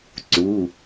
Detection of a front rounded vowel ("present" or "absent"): absent